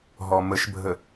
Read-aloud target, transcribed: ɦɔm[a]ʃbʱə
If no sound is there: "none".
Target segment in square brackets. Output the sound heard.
ə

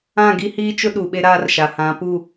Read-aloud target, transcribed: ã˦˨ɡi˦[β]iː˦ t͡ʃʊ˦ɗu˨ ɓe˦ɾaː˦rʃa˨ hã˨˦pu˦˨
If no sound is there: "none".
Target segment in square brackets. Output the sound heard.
h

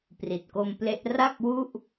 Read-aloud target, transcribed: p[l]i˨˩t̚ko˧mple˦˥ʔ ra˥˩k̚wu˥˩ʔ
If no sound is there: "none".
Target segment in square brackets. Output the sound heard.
r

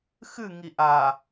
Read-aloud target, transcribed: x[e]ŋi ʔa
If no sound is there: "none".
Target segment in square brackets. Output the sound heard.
ɨ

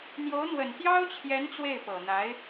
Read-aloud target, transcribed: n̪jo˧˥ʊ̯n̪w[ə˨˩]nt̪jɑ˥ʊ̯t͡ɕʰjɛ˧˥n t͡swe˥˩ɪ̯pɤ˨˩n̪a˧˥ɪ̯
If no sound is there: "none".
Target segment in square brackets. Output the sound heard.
ə˨˩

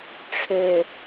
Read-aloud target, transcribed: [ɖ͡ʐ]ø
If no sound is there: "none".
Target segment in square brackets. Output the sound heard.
ʈ͡ʂʰ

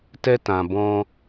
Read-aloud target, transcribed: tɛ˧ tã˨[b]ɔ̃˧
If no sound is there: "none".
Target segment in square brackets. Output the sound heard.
b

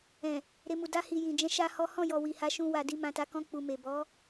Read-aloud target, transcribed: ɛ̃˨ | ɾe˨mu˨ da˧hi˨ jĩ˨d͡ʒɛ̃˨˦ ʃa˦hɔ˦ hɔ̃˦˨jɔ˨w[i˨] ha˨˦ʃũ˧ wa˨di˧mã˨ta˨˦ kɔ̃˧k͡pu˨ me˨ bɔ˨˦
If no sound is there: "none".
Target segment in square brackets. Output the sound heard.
i˨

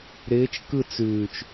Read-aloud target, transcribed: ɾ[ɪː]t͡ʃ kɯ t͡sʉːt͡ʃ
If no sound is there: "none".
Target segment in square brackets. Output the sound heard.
ɪː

